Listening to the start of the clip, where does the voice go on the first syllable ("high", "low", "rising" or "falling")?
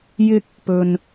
high